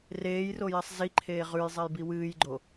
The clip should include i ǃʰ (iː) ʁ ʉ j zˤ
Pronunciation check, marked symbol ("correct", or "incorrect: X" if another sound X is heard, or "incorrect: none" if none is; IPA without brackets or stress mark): incorrect: eː